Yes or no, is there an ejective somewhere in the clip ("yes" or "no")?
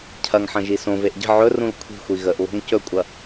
yes